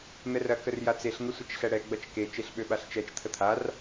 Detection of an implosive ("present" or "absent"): present